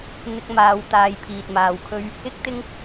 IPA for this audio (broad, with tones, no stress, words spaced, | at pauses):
n̪ɪ˧k̚maː˨wt̪aː˨j pʰiː˨t̚maː˨wkʰɵ˥ɥ | ɪ˥k̚t̪ɪ˥ŋ